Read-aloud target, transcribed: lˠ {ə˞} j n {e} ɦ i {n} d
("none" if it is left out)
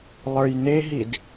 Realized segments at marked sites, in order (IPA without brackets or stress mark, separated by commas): ə˞, e, none